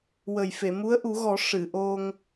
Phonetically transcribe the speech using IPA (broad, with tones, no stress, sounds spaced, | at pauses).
w ə˨˩ j f e˨˩˨ m u˧˥ ə̯ ʔ u˨˩˦ ɣ ɔ˨˩˦ ʂ ɨ˨˩˨ ʔ o˧ ŋ